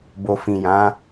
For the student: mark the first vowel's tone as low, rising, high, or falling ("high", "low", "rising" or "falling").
low